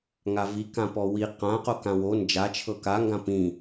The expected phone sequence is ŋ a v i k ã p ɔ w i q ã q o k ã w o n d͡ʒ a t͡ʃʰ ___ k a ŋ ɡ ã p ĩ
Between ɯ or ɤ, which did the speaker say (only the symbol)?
ɤ